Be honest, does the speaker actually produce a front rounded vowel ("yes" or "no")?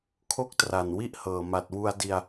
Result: no